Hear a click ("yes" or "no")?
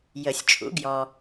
no